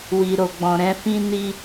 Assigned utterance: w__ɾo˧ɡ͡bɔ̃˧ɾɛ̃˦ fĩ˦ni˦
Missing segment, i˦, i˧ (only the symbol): i˧